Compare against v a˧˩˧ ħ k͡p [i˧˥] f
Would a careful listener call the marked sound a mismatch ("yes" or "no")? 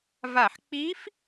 no